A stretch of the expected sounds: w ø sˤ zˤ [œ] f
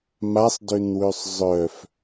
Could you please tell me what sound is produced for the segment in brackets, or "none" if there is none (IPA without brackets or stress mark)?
œ